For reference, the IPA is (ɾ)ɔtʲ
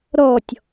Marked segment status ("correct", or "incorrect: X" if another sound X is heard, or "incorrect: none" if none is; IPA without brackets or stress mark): correct